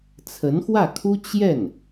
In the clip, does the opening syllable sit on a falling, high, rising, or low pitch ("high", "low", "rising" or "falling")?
rising